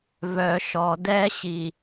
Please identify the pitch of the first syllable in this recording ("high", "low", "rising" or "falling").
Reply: low